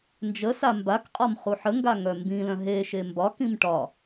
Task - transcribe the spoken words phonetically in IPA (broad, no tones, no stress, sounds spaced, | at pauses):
n d͡ʒ ə s a m b a k qʼ ɒ m χ u ħ ə ŋ ɡ a ŋ œ m b ĩ l œ̃ ɦ e ʃ e m b ɒ k ĩ m ʈ ɒ